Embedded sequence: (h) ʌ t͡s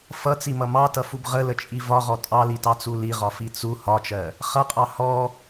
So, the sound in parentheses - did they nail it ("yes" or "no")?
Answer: no